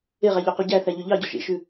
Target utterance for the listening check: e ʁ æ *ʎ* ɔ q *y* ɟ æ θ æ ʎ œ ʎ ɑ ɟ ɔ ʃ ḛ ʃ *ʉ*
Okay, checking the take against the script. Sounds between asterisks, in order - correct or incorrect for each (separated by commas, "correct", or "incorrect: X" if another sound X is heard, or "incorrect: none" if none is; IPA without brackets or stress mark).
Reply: correct, correct, correct